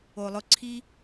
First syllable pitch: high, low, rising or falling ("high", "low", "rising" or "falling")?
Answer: low